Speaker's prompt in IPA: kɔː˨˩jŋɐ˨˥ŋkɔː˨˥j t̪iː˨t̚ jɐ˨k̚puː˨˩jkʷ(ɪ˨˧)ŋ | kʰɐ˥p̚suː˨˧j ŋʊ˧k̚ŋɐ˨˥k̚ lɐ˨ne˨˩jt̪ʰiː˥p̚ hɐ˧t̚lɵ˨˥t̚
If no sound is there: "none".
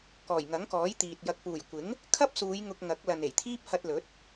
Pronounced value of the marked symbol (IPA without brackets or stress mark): ɪ˨˥